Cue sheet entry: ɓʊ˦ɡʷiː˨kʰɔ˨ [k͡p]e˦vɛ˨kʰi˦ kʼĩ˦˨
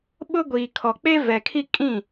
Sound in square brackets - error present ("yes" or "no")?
no